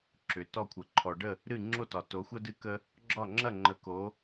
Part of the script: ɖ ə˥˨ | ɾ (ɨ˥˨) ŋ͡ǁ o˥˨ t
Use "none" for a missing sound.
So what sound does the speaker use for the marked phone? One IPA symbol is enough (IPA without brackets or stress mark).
ɨ˥˨